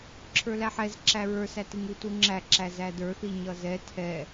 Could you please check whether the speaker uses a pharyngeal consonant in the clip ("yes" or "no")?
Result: yes